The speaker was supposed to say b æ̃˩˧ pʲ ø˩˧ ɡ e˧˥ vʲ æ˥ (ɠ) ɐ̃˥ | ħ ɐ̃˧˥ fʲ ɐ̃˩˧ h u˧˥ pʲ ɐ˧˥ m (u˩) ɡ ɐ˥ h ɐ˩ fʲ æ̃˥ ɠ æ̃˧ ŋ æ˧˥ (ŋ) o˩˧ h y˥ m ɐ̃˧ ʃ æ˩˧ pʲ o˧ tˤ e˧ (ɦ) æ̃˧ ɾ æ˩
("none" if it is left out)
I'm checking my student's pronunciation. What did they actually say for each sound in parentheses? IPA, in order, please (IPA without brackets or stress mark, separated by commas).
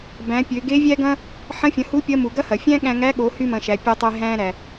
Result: ɡ, u˩, ɠ, ɦ